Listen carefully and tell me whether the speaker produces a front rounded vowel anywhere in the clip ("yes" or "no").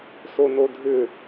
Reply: yes